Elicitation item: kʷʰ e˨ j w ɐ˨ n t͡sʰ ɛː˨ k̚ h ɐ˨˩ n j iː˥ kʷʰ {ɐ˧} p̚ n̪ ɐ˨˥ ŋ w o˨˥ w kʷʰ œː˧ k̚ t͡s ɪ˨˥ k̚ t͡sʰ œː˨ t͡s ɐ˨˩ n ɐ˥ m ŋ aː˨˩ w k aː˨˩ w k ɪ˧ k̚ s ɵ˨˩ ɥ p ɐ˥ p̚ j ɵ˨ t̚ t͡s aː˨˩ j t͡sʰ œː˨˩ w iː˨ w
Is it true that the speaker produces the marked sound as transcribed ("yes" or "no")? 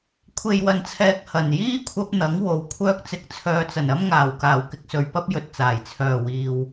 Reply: yes